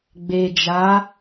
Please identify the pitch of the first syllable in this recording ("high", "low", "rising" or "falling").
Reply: low